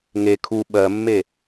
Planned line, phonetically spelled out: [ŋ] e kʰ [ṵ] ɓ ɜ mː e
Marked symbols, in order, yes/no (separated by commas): yes, no